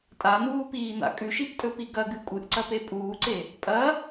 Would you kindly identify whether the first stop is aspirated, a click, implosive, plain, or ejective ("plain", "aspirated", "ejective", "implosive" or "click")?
ejective